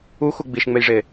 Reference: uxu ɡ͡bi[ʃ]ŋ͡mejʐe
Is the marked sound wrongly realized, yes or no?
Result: no